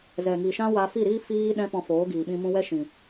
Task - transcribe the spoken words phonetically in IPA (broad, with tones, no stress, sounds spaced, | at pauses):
z ɛ˨ ŋ i˨ ʃ ã˦ w a˧ f i˦˨ ɾ iː˦ f iː˦ ɗ ɛ̃˦ p ɔ̃˧ f oː˨˦ ɡ iː˨ ɓ ĩ˧ m ũ˧ w ɛ˦ ʃ ĩ˨